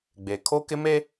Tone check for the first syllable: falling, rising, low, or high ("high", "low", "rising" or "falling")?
low